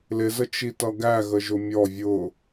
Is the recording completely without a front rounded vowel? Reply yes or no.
yes